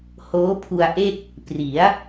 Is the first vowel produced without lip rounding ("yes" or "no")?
no